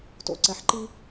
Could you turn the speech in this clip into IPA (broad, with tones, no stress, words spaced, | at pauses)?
to̰˩ǀɛ˩ħǃi˧